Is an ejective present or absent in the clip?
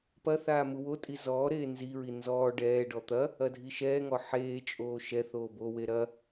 present